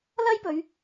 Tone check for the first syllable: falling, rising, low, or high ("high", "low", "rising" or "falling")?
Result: high